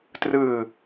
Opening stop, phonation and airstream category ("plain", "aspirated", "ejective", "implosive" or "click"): plain